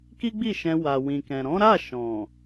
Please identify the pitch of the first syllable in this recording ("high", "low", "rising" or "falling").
high